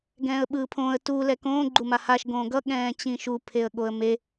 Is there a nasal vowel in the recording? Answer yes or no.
yes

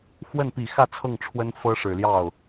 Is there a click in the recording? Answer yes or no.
no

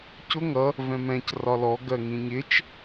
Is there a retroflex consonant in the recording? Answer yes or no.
no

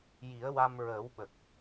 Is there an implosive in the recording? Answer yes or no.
yes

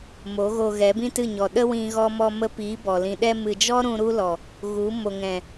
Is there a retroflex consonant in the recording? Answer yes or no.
no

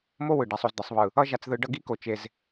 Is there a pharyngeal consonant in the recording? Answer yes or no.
no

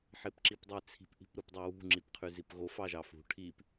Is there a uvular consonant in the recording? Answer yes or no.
yes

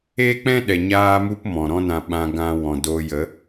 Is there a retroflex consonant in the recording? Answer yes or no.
no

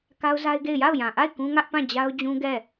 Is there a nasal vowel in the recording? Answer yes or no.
yes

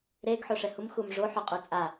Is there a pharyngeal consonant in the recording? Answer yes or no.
yes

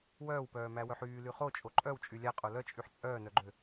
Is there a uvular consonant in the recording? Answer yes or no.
yes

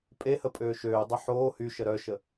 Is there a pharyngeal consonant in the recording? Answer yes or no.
yes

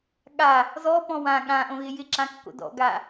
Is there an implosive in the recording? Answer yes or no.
yes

